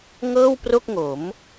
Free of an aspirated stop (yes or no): yes